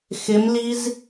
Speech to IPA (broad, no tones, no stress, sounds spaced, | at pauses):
x ɪ m l i z